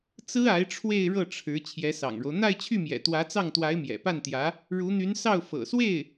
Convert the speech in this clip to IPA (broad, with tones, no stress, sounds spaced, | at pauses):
t͡s ɹ̩˥ a˧˥ ɪ̯ ʈ͡ʂʰ w e˥˧ ɪ̯ ɻ ɤ˥˩ ʈ͡ʂʰ ɻ̩˧˥ t͡ɕʰ j ɛ˧˥ s ɑ̰˨˩ ŋ ɻ o˦ ʊ̯ n̪ a˥˧ ɪ̯ t͡ɕʰ y˥˩ m j ɛ̰˨˩ t̪ w ä˧˥ t͡s ɑ˥˩ ŋ t̪ w a˧˥ ɪ̯ m j ɛ̰˨˩ p a˥˩ n t̪ j ä˧˥ | ɻ u˧˥ n̪ y˧˥ n s ɑ˥˩ ʊ̯ f ɤ̰˨˩ s w e˥˩ ɪ̯